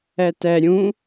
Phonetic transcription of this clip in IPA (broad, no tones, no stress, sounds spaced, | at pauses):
ɛ t ɛ ɾʲ ũ